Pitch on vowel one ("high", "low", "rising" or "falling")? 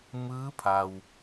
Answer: rising